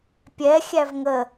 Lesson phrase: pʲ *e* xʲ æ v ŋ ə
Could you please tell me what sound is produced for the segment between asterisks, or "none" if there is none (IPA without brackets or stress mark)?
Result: ɛ